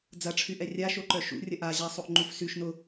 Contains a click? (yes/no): yes